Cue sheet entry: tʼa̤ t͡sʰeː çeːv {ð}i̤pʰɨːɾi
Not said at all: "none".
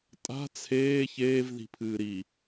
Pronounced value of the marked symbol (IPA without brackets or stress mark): ð